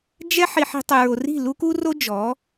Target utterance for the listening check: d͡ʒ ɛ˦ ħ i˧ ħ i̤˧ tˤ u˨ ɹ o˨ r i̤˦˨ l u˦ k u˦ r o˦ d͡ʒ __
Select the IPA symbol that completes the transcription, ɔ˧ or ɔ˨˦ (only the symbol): ɔ˨˦